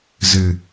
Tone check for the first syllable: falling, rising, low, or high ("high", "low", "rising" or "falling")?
low